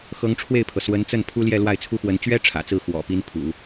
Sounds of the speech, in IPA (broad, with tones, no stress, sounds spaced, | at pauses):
x ɤ˧˥ ŋ ʈ͡ʂʰ w e˥˩ ɪ̯ pʰ ɤ˩ s w ə˧˥ n t͡s ə˥˩ n pʰ u˥ l j ɛ˥˧ l w a˥˩ ɪ̯ t͡sʰ u˥ x w ə˧˥ n t͡ɕ ɥ ɛ˥ ʈ͡ʂʰ ä̰˨˩ t͡s ɹ̩˥˩ x w ɔ̰˨˩ p i˥ n pʰ ṵ˨˩˦